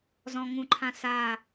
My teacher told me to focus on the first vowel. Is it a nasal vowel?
yes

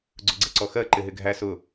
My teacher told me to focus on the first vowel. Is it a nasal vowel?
no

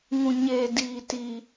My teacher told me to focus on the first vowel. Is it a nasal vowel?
yes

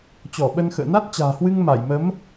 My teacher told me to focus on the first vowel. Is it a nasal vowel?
no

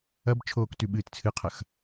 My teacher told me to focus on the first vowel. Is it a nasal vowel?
no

